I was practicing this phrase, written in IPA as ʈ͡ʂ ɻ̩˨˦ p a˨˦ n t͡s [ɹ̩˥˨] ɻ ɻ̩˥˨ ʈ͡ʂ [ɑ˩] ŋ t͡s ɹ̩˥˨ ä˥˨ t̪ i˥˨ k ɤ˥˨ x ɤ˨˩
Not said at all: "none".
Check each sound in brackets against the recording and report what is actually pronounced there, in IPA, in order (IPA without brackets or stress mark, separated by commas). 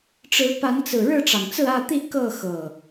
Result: ɹ̩˨˩, ɑ˩